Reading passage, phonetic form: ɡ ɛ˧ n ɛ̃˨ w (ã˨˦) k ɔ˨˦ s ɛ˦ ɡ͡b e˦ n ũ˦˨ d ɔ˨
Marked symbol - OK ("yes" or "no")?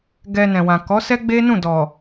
no